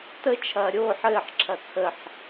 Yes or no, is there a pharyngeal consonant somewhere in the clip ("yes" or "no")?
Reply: yes